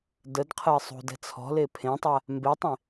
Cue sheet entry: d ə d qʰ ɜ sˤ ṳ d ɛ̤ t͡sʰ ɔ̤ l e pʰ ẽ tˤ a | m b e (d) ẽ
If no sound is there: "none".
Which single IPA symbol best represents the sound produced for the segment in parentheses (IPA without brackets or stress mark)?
tˤ